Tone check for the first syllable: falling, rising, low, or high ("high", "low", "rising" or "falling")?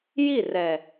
falling